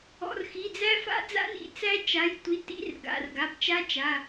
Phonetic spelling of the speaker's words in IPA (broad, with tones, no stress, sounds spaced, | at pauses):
ɔ̰˩˧˩ r x i˩˧˩ d͡z æ˦˥ f a̰˦˥ d͡z a̰˦˥ n ḭ˩˧˩ t͡s æ˦˥ t͡ʃ a˩˧˩ j tʷ i˩˧˩ t ḭ˦˥ r ɡ a̰˩˧˩ r ɡ a˩˧˩ b t͡ʃ a˦˥ t͡ʃ a˩˧˩